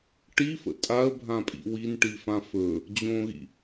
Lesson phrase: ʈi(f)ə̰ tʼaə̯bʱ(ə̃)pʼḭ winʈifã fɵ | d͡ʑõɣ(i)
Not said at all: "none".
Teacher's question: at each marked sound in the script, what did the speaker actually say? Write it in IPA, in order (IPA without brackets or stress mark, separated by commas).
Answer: f, ã, ḭ